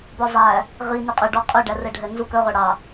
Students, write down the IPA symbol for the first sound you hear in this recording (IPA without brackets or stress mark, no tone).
b